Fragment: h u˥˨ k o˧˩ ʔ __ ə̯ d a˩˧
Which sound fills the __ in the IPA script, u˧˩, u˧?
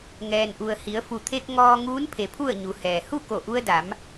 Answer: u˧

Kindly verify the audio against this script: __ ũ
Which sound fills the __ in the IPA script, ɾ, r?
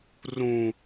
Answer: r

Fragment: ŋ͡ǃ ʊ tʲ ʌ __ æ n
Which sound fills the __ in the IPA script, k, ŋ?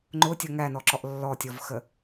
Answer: ŋ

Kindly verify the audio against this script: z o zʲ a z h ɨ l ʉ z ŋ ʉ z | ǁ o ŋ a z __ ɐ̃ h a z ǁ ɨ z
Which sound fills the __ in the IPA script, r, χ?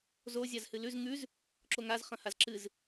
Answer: χ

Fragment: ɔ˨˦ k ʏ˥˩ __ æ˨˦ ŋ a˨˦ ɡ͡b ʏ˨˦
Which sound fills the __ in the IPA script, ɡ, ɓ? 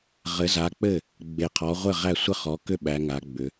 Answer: ɓ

